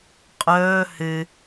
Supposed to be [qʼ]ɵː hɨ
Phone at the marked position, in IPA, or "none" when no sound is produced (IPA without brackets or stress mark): qʼ